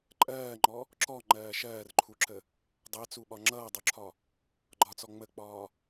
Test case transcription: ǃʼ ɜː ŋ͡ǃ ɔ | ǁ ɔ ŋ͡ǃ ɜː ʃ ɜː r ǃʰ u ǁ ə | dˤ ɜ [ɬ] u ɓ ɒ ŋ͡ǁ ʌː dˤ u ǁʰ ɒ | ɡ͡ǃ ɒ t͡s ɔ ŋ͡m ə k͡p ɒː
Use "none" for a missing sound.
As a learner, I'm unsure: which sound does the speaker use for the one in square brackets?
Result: t͡s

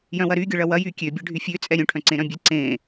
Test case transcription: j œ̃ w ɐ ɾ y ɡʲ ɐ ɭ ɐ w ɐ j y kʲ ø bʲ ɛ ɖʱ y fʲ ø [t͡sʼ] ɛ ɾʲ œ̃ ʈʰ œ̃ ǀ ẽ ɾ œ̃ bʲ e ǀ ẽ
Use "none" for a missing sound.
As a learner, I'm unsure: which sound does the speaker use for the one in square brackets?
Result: t͡sʼ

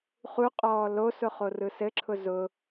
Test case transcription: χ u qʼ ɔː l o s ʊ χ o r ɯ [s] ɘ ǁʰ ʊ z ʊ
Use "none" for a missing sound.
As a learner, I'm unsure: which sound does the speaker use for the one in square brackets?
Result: s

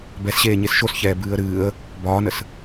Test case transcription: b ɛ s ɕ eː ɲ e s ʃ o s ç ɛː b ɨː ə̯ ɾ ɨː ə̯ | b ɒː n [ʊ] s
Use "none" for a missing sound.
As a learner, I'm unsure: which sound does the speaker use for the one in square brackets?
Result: ə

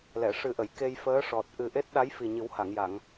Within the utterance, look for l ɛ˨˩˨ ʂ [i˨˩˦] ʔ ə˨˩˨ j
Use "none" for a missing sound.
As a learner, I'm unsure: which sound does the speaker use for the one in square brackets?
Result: ɨ˨˩˦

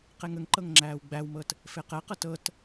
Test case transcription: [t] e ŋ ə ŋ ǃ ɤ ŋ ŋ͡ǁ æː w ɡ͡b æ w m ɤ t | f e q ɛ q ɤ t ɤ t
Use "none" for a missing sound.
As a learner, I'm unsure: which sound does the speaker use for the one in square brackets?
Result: q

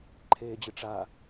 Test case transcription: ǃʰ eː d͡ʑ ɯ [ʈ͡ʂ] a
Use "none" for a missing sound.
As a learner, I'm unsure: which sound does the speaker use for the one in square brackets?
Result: ʈ͡ʂ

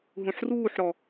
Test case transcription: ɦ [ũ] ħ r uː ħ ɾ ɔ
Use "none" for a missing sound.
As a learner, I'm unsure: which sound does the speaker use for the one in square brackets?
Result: ũ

